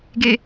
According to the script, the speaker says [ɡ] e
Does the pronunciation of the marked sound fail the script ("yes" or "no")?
no